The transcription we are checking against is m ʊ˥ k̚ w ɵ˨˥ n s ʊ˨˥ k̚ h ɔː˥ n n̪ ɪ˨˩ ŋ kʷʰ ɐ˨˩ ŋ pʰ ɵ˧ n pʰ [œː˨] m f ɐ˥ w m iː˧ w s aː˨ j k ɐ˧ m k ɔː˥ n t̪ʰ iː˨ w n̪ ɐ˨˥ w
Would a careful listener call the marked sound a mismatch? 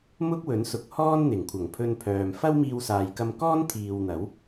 no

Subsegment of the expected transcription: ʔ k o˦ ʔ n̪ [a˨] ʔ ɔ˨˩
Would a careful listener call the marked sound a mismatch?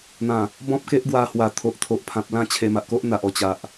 no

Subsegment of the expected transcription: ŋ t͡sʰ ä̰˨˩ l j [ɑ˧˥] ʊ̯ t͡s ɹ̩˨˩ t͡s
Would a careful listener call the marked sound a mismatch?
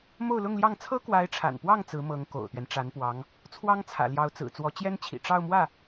no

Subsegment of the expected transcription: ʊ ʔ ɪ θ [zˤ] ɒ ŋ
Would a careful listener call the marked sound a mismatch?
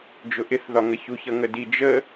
yes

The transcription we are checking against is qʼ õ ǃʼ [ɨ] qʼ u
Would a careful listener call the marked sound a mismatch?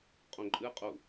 no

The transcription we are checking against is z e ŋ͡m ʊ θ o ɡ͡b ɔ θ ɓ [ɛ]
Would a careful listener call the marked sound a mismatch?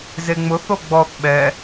no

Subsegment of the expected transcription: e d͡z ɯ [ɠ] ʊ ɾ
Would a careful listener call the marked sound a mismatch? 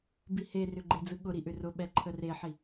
no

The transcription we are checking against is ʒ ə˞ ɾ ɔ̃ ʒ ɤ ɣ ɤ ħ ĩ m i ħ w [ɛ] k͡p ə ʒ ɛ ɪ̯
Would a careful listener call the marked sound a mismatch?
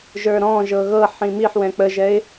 yes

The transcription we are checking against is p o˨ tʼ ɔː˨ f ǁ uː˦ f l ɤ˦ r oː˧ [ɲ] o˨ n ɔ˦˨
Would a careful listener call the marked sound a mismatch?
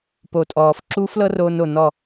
yes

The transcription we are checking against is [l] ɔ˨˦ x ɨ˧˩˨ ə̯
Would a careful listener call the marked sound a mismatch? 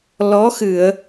no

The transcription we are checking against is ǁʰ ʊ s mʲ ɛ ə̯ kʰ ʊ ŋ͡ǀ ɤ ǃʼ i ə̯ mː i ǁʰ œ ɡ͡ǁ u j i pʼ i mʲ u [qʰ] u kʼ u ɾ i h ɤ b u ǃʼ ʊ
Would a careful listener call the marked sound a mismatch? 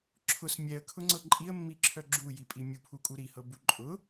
yes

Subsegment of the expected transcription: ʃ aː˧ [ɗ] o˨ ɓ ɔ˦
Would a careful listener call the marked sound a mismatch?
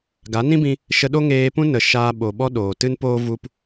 yes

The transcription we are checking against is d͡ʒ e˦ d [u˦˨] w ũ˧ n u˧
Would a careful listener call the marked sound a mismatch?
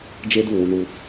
no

